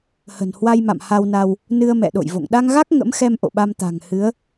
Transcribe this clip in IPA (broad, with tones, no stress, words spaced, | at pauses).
hə̤˨˩nhwa˧jma̰˧˨m ha˧wna˧w | nɨ˧ə̯mɛ̰˧˨ɗo̰˧˨jvo̰˧˨ŋ ɗa˧ŋɣa˦˥k̚ ŋə̰˧˥mxɛ˧m ʔo̰˧˨ɓa˧m t̪a̤˨˩ŋhɨ˨˦ə̯